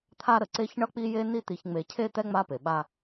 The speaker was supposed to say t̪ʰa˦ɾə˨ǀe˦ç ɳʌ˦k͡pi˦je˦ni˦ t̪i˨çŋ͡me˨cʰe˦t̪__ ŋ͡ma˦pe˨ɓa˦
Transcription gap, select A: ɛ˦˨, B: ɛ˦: B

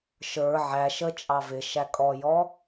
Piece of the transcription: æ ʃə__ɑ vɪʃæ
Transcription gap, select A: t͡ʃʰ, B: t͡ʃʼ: B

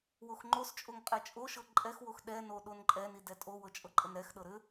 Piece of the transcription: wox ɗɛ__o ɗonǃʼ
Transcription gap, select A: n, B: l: A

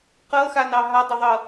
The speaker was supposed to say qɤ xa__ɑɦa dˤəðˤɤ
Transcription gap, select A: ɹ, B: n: B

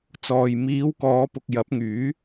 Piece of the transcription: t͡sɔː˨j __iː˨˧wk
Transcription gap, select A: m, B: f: A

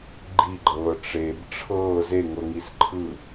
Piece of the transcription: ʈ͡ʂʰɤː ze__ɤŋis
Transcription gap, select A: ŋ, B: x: A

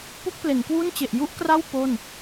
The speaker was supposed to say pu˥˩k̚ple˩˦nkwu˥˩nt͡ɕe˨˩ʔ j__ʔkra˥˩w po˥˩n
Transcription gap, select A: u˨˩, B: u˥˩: B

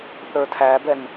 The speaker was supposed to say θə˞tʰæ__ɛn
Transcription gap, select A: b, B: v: A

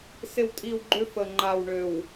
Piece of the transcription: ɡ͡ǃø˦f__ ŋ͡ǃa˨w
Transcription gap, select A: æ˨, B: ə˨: B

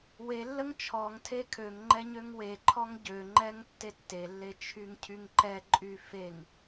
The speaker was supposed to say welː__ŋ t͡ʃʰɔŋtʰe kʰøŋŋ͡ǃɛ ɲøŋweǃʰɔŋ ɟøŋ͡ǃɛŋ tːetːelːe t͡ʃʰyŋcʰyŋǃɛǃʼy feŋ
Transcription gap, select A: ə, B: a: A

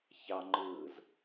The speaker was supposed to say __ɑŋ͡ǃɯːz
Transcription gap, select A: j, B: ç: B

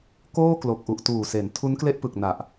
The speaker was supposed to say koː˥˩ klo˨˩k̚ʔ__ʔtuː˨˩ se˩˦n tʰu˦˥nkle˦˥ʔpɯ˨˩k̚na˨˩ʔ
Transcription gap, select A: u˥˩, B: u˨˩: B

